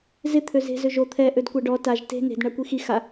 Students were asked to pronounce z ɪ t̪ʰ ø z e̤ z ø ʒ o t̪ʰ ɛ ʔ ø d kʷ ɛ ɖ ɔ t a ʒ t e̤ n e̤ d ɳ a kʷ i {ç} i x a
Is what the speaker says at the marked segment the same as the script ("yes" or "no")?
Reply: no